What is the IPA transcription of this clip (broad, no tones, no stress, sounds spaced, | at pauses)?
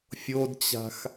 fʲ o d t͡ɕ a̤ x